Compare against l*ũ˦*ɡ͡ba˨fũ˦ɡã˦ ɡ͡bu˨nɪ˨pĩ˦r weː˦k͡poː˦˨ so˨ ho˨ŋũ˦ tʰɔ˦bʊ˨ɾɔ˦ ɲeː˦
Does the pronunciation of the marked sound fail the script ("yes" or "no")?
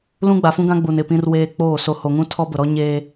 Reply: no